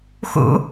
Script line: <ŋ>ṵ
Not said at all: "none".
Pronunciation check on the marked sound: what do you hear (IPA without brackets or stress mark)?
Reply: x